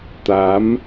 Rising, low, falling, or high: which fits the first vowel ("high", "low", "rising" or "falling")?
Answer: rising